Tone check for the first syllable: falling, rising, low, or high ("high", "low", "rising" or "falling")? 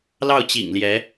falling